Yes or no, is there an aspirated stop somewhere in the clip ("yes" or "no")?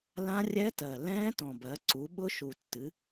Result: no